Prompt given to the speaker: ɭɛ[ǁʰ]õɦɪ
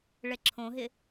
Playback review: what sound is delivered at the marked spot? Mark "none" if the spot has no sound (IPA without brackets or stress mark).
ǁʰ